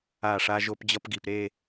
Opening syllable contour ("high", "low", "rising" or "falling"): falling